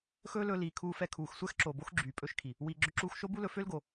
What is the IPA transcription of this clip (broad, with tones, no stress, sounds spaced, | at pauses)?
x ɵː˦ l ɵ˧ l iː˨ kʰ uː˧ f ɛ˧ kʰ uː˨ x sʷ ɛ˦ x ǁ o˨ b o˦ x ɡ͡ǁ yː˨ pʼ ɵ˦ ʃ kʰ i˨ | w iː˨ ɡ͡ǁ ɵ˧ ǁ uː˧ x ʃ o˦ b u˦ l ɵ˧ f ø˦ l ɡ o˨